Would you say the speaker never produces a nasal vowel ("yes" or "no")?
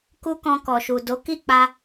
no